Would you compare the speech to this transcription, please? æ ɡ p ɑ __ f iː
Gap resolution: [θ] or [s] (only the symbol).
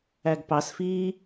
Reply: s